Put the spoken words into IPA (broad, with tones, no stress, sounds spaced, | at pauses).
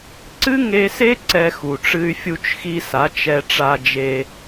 ǀ ɨ˦ ŋ e˧ s e˦ ǀ ɛ˧ x u˨ ʈ͡ʂ ɨ˧ y̯ fʲ u˧ t͡ʃ x i˧ s a˨˦ t͡ʃ ɛ˧ ʈ͡ʂ a˧ d͡ʒ e˧